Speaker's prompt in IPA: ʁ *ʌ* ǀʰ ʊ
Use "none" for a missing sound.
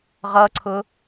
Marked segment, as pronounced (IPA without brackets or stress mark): ʌ